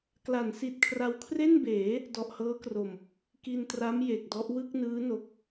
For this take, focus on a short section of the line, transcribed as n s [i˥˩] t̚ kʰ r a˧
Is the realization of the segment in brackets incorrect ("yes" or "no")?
yes